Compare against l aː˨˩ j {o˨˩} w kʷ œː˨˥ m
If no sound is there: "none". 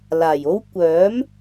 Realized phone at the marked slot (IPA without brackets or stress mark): o˥